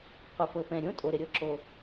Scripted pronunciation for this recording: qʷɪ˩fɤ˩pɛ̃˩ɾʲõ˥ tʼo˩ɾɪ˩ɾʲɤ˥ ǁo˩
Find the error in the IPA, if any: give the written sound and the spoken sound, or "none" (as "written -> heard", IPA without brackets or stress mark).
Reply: none